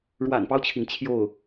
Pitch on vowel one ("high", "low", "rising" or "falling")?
low